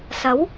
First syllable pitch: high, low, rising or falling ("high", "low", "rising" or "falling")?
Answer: rising